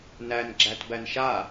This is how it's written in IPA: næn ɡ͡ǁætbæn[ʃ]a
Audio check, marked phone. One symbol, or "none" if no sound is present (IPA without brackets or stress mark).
ʃ